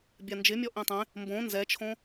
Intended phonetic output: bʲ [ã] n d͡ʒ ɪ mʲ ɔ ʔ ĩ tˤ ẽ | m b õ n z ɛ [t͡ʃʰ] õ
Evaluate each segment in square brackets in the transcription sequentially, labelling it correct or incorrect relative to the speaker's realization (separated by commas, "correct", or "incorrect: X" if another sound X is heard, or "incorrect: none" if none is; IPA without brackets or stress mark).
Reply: incorrect: a, correct